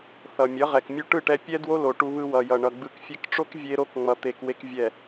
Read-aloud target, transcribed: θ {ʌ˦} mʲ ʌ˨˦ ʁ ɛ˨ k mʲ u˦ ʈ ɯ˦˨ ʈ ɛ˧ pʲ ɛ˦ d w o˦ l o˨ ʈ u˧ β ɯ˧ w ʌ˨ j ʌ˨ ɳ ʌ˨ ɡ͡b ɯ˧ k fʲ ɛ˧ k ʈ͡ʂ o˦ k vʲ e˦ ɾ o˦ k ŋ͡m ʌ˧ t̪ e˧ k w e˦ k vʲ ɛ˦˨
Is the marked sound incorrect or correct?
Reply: incorrect